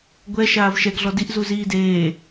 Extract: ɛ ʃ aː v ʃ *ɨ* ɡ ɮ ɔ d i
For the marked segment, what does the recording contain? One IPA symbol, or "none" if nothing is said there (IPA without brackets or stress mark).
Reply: ɛ